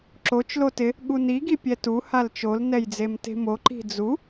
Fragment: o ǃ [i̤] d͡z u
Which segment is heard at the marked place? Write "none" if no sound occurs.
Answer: i̤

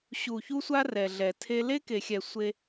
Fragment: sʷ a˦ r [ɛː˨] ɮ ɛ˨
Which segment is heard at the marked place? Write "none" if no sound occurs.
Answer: ɛ˨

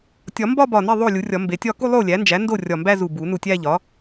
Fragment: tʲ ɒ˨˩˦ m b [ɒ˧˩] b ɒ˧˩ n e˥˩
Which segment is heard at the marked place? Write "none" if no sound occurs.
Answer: ɒ˥˧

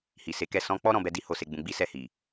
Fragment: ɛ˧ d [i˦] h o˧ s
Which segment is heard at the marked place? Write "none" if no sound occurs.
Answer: i˦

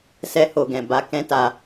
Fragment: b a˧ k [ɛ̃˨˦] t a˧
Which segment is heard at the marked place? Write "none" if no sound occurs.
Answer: ɛ̃˦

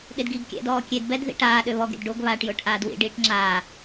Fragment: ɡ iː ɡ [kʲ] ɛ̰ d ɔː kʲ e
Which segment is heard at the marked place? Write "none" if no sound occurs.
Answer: kʲ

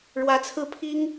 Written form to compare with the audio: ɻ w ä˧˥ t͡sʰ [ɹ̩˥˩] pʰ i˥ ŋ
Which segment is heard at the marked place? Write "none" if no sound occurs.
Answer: ɹ̩˥˩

